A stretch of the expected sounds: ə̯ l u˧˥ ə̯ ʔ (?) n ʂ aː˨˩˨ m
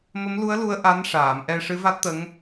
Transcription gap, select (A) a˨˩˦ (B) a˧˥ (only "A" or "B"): B